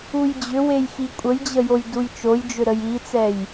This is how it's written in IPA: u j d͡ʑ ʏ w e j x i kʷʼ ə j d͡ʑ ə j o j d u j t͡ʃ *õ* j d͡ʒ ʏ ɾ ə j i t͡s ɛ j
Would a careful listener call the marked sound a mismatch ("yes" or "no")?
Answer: yes